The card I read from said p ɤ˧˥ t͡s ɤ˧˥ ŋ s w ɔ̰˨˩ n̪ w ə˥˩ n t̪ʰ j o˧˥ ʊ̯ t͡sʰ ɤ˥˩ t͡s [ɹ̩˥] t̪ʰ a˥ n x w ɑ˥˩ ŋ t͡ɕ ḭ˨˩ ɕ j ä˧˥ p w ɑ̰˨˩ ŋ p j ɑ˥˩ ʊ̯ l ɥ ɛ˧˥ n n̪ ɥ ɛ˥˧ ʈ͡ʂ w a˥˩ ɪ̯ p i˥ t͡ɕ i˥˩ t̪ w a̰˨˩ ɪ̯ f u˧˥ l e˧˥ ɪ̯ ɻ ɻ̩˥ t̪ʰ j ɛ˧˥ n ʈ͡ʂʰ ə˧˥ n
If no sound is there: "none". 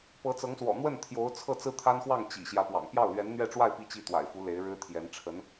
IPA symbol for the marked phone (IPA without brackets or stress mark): ɹ̩˥